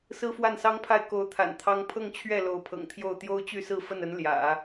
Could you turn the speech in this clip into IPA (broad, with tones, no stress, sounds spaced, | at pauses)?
s ɹ̩˥ f w a˥˩ n s ɑ˥ ŋ pʰ a˥˩ ɪ̯ k o˧˥ ʊ̯ t̪ʰ a̰˨˩ n t̪ʰ ɑ˥ ŋ pʰ ɤ˥˧ ŋ t͡ɕʰ ɥ ɛ˥˩ l o˧˥ ʊ̯ pʰ ɤ̰˨˩ ŋ t̪ʰ j o˥˩ ʊ̯ t̪ j o˥ ʊ̯ t͡ɕ y˥˧ s ɹ̩˥˧ f ə˥˩ n ə˧˥ n l j ä̰˨˩˦